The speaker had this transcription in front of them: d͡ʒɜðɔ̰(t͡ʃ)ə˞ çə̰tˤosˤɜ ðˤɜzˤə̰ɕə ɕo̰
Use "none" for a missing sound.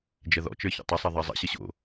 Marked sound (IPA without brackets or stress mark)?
t͡ʃ